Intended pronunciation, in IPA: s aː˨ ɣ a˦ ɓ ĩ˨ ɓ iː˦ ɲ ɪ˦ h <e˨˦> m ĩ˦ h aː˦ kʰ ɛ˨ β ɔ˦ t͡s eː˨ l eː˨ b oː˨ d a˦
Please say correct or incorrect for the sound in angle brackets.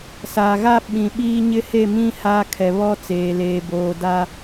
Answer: incorrect